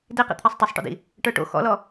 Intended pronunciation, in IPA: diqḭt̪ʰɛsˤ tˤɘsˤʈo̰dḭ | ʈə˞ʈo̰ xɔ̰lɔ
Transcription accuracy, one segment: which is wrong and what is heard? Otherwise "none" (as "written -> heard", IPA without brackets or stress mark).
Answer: none